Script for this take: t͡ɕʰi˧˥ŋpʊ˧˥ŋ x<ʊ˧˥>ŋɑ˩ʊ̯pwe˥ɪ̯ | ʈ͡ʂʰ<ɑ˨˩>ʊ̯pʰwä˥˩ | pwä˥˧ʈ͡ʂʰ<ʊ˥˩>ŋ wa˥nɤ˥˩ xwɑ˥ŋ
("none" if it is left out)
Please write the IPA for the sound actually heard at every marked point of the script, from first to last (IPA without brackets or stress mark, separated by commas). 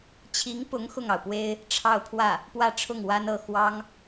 ʊ˥˩, ɑ˥˧, ʊ˥˩